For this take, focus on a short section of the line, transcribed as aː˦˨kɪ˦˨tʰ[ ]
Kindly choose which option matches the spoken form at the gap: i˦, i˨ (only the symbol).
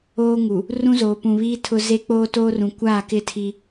i˦